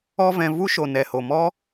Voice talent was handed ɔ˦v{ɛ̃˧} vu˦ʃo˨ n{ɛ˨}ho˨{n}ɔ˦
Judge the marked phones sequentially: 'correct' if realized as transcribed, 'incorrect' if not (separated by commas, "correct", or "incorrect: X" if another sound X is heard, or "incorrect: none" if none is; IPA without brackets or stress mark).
correct, correct, incorrect: m